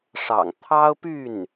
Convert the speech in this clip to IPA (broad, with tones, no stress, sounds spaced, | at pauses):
ʂ ɑ̰˨˩ ŋ t̪ʰ ɑ˥ ʊ̯ p y˥˩ n